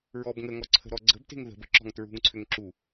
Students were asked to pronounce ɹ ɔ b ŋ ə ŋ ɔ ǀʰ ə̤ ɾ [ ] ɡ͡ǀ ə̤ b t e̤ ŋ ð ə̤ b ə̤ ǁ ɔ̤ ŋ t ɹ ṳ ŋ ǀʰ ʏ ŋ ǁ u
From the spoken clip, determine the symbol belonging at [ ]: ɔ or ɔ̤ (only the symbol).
ɔ